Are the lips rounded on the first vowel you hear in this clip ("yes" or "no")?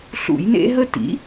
yes